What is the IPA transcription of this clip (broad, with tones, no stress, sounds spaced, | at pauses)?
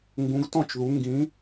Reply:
ŋ ɡ ũ˨˦ ɡ t ɔ̃˥˩ t͡ʃ ð u˨˦ ŋ ɡ ĩ˨˦